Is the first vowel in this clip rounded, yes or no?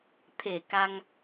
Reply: no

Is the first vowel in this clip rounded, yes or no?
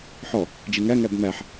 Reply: yes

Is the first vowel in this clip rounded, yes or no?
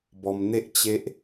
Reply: yes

